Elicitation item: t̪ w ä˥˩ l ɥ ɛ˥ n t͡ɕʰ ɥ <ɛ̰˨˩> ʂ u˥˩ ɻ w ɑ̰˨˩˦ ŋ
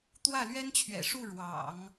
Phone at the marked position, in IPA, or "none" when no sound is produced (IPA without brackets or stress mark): ɛ̰˨˩